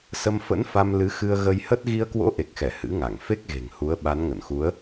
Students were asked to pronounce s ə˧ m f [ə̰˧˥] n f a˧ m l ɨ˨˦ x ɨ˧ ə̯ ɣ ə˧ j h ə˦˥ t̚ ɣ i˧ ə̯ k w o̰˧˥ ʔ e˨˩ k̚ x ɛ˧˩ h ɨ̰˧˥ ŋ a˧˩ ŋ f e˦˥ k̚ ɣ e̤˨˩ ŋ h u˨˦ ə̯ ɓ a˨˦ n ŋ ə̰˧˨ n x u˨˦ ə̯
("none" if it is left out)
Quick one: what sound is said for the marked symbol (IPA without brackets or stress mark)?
ə̰˧˥